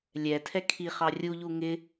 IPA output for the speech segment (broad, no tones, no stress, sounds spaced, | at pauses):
lʲ ɛ tʰ ɛ kʰ i χ ɑ rʲ u ʎ u ŋ ɪ